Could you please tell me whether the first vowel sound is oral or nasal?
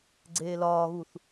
oral